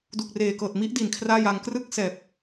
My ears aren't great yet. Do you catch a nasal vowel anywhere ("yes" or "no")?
no